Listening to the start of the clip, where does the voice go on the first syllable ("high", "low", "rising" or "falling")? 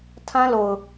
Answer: high